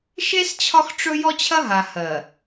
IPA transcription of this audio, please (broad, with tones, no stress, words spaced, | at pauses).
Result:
ʃe˦s t͡ɕʰɒ˦xʈ͡ʂɵ˦ jɔ˦t͡ɕʰɐ˦ɦa˨ hɜ˨